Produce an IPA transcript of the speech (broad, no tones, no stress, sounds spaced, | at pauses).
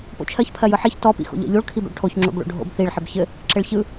p o̰ t͡ʃʰ ɜ ç pʰ ɜ j ɯ ħ i ç t ɔ p ḭ x o̰ ʎ ɔ̰ ʎ o ɭ kʰ i b o̰ ɭ ʈʰ o ç ŋ͡ǁ o̰ b ɭ o̰ ɖʱ o̰ b θ i ɭ ħ ɘ b ç ɘ | ǁ ɘ ɭ ç ɯ